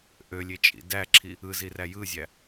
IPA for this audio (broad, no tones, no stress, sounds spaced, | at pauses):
ʔ ø lʲ e t͡ʃʼ ḭ d æ ǁʰ i | ɯ z i r æ j ɯ zʲ æ